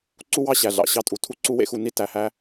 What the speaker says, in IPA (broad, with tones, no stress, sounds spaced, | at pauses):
ǀ u˦ w ɑ˦ ɕ æ˨ ɮ ɑ̰˨ ɕ ɑ˦ tʼ u˨ tʰ u˦ ǀ u˦ w ḛ˦ x u˨ n i˦ t æ˨ h æ˦